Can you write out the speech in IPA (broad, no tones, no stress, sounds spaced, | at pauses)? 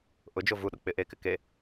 ʔ ʊ d͡ʒ o v u ɗ ʊ k͡p ɪ ʔ e k ɪ k e